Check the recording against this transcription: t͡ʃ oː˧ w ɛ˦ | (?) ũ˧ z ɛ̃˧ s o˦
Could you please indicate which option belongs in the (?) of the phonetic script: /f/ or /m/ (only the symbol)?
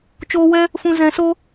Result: f